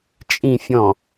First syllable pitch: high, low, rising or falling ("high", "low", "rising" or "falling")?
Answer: low